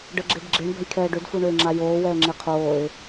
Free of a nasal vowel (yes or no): yes